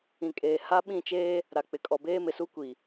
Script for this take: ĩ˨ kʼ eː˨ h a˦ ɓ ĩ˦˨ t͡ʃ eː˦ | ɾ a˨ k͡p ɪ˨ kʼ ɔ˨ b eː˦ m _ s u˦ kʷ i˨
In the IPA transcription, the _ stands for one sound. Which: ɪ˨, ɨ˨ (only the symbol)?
ɪ˨